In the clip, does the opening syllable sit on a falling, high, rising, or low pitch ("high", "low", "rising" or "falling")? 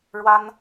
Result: high